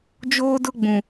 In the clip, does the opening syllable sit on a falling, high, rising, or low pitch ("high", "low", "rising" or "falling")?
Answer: high